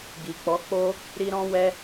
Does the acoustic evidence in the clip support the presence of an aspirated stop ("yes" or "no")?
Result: no